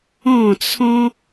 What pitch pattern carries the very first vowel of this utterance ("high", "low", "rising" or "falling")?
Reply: falling